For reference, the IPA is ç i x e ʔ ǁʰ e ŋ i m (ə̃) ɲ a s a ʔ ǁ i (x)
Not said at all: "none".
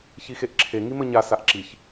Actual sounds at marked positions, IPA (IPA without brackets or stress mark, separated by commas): ə, ç